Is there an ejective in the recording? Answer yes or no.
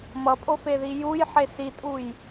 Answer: yes